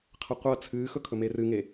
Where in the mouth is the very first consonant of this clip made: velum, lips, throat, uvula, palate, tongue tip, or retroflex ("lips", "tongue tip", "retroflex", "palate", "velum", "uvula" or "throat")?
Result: uvula